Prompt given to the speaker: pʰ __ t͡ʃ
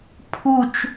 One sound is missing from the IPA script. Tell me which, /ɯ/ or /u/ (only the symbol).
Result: u